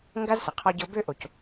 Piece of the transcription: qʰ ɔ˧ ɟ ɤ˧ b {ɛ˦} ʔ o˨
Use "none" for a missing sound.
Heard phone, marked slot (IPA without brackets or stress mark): ø˦